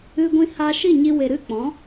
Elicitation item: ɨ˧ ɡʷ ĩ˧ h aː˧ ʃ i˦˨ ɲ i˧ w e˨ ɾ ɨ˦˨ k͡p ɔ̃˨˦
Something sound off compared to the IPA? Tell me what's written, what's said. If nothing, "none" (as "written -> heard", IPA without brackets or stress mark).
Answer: none